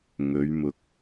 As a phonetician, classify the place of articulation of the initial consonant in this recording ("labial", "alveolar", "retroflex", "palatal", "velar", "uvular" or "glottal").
velar